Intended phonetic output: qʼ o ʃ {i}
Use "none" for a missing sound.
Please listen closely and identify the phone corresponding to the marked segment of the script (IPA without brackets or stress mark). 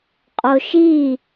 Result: i